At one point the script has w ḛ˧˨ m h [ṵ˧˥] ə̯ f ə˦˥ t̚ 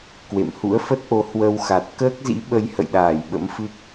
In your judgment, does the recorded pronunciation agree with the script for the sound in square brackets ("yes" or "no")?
yes